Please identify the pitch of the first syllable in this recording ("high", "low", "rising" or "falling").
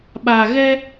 low